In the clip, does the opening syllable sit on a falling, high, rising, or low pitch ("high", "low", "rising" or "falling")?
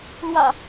low